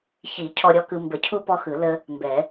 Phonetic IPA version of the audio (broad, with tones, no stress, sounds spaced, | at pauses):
ç i˨˩˦ cʰ ɔ˦ ɾʲ ɔ˦ k ɯ˦ m b ə˨˩˦ cʰ u˦ p ɔ˦ x ɯ˨˩˦ l ə˦ | m b ɛ˨˩˦